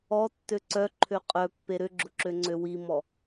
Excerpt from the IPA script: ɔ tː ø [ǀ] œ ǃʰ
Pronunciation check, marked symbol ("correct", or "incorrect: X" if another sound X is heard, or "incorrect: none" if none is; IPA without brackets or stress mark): correct